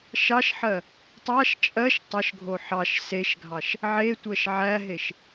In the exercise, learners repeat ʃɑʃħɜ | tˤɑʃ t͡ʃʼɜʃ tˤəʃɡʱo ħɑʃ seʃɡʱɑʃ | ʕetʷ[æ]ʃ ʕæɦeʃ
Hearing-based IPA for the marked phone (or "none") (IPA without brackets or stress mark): ɜ